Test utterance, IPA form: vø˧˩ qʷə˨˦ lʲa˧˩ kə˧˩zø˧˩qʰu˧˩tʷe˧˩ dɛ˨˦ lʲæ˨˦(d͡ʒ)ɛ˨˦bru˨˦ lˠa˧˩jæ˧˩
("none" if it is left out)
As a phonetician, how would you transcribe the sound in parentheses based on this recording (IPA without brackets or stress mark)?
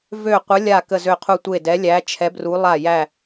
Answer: t͡ʃʰ